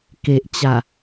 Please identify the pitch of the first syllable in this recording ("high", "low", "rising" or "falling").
low